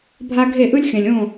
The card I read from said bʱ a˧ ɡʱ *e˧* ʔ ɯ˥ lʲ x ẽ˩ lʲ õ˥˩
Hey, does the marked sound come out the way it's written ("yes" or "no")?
no